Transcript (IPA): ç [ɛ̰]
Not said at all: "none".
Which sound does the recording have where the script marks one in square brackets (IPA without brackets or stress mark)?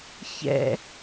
ɛ̰